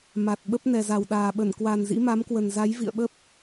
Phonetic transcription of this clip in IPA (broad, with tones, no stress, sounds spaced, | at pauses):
m a˨˩ t̚ ɓ ə˦˥ p̚ n ɛ˨˩ z a˨˩ w ɗ aː˨˩ ɓ ə˧˩ n k w a˨˩ n z ḭ˧˥ m a˨˦ m k w ə˨˩ n z a˨˦ j v ḭ˧˨ ə̯ ɓ ə˦˥ p̚